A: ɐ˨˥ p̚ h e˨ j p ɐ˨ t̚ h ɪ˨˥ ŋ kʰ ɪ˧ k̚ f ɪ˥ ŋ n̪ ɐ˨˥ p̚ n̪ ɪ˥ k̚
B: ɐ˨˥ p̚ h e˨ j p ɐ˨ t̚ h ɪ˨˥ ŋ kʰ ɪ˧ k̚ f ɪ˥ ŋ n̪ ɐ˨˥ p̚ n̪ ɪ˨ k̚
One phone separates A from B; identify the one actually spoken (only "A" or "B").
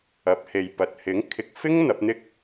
A